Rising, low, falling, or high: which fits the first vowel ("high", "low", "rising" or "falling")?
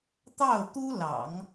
falling